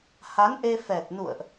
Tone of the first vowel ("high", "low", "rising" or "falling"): rising